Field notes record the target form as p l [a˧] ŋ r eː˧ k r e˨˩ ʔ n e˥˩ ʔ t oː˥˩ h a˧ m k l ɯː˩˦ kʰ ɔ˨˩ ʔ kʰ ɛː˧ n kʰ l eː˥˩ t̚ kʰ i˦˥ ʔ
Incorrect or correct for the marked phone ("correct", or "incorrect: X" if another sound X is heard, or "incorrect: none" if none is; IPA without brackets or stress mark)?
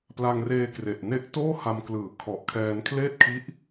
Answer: correct